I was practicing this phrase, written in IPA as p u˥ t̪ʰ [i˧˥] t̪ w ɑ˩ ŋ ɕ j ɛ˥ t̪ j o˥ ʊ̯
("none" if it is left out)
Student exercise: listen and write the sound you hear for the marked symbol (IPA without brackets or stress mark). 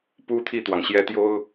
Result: i˥˩